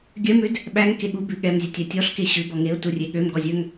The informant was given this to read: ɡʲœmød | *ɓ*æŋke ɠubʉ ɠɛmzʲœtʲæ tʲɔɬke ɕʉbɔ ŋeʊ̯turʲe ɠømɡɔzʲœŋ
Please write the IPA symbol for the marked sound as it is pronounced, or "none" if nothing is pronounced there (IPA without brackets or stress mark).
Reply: ɓ